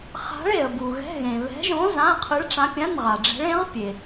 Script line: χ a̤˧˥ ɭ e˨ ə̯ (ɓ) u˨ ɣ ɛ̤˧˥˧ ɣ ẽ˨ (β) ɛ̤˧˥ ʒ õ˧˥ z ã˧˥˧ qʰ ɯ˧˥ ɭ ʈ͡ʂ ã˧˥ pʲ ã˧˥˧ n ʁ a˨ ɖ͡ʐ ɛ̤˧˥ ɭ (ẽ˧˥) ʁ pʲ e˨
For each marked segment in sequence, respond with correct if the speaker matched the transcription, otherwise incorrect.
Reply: incorrect, correct, correct

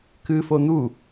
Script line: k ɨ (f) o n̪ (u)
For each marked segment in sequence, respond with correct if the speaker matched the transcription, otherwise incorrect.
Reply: correct, correct

